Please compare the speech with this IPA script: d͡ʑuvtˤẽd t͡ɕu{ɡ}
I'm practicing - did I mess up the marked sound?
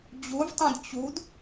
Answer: yes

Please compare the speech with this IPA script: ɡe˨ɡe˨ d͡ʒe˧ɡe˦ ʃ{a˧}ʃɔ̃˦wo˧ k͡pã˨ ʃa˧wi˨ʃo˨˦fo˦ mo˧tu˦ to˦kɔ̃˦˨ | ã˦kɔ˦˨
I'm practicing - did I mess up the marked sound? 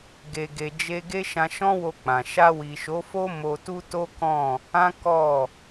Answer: yes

